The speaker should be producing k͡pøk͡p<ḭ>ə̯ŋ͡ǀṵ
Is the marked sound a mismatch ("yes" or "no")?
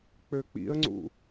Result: no